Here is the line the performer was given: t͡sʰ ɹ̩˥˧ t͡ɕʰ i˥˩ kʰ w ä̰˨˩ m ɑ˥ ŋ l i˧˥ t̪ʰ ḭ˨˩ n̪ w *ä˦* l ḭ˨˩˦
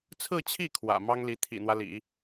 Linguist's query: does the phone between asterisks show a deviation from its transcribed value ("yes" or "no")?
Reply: no